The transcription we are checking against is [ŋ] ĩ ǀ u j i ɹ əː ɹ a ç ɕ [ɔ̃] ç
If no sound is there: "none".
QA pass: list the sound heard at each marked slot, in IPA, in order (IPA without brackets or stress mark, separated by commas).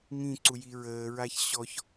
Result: ŋ, ɔ